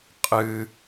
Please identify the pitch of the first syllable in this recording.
high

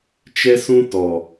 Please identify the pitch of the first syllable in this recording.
high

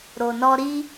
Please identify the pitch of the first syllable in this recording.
low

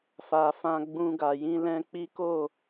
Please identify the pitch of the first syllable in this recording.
low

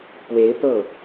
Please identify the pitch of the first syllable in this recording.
rising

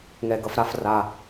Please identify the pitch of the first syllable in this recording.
low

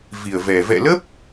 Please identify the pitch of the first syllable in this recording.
low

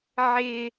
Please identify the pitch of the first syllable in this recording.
high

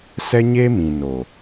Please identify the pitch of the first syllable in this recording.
high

